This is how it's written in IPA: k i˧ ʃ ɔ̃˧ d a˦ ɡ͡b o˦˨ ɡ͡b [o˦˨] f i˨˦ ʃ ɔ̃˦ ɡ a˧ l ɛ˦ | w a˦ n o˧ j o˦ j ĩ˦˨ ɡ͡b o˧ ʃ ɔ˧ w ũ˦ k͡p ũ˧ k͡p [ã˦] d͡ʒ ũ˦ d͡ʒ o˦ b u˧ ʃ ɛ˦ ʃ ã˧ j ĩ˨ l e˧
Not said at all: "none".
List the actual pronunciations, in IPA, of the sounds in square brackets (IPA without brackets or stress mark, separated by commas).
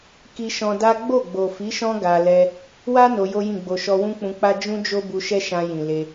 o˨, a˦